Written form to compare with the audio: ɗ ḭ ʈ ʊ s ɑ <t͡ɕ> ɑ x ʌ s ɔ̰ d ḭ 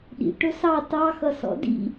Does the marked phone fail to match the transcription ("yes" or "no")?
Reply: yes